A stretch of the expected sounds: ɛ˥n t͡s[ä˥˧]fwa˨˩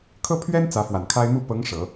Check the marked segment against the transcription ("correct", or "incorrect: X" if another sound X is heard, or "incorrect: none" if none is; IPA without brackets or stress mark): incorrect: ä˧˥